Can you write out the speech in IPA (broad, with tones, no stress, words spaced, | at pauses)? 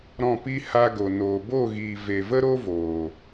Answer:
ɾɔ̃˦˨pi˦ ha˧ɡo˨ noː˨bo˦˨ɣiː˨ ve˨və˦ɾo˦voː˨